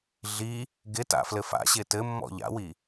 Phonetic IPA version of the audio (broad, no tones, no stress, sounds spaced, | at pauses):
ɮ i | ɡ ɪ t a̰ f l ɘ f a̰ ɕ ɪ t ɘ mː ɔ̰ ʎ a̰ w i